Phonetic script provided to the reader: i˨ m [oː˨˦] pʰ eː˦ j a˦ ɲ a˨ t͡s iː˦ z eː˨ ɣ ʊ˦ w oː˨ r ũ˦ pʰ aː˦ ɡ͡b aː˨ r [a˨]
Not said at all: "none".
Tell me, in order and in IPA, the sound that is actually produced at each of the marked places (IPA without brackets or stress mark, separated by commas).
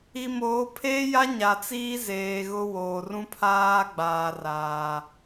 oː˨˦, aː˨